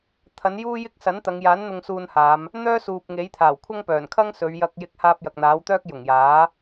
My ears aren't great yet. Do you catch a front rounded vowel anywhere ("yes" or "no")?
yes